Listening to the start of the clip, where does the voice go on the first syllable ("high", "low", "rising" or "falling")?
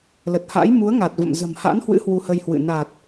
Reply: low